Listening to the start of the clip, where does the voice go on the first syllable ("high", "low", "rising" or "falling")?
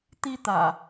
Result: high